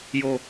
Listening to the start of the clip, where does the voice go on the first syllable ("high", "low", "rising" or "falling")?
low